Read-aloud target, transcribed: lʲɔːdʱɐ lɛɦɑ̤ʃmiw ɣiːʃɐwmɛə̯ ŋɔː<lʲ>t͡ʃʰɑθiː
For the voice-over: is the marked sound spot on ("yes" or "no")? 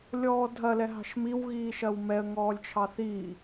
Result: yes